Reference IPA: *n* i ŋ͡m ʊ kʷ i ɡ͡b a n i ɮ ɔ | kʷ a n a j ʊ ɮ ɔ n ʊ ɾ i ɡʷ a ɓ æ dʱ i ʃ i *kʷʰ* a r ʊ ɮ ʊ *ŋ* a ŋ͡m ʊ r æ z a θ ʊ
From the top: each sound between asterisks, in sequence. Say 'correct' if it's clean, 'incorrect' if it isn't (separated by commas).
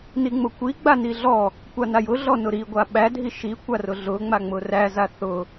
correct, incorrect, incorrect